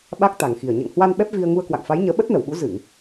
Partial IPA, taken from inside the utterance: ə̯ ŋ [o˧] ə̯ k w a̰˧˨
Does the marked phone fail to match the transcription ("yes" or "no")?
yes